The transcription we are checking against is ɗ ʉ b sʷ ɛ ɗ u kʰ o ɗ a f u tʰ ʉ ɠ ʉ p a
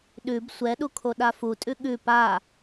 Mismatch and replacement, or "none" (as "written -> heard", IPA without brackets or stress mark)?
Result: tʰ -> tʼ